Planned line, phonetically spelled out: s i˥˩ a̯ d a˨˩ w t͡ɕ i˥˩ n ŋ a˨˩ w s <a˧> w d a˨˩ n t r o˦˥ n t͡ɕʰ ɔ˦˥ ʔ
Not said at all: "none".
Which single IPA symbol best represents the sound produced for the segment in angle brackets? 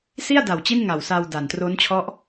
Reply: a˧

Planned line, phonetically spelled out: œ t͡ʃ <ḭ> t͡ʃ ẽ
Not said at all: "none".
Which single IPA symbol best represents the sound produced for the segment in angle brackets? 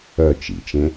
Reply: ḭ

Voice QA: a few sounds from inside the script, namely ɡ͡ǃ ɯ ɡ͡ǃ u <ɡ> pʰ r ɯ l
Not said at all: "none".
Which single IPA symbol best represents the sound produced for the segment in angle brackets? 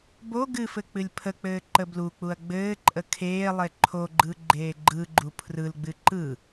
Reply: none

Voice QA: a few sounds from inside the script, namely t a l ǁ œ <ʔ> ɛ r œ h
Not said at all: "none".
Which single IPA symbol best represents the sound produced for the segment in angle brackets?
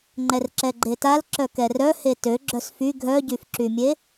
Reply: k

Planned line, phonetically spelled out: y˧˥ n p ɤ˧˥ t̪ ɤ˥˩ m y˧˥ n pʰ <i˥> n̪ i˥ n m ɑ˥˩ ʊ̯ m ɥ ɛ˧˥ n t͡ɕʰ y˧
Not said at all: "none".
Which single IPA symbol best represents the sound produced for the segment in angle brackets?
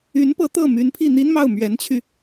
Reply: i˥˩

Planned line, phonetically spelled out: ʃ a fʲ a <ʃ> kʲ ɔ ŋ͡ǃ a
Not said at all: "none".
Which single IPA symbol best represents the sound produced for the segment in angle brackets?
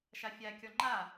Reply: none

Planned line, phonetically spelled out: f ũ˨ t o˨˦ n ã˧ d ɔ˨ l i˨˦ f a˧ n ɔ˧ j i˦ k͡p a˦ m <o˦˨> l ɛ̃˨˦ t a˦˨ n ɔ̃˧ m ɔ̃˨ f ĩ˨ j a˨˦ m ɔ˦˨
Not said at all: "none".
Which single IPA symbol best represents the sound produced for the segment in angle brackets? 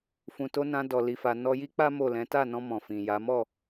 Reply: o˦˨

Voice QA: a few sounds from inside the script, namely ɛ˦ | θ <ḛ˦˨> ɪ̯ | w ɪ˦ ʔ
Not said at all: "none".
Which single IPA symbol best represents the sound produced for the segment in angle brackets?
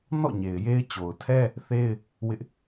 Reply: e˦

